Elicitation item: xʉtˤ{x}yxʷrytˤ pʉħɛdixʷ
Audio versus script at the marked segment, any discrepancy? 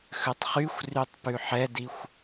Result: yes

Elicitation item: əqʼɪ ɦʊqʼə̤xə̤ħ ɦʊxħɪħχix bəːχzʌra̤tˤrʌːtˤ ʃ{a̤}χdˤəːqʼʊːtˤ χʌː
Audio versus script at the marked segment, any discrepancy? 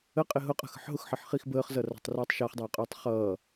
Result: yes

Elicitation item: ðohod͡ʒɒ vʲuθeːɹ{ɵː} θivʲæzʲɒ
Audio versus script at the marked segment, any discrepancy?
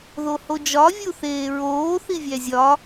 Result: yes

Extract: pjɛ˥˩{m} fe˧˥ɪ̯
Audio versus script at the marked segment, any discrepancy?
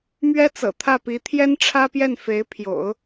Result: yes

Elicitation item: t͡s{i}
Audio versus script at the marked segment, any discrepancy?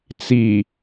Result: no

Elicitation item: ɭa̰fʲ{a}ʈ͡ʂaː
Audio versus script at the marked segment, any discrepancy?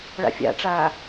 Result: yes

